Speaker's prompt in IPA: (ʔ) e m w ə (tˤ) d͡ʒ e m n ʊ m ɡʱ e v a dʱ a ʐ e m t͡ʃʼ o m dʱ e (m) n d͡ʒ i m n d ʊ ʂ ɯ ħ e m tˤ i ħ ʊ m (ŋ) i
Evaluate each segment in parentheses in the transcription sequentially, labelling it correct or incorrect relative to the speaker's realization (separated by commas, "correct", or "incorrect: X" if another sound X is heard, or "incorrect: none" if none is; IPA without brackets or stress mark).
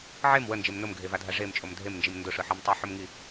incorrect: ʕ, incorrect: n, correct, correct